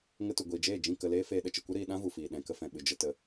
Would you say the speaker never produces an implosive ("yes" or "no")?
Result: no